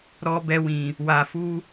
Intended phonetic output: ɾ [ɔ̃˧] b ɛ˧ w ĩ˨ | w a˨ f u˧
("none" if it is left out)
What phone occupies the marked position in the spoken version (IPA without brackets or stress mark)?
ɔ˧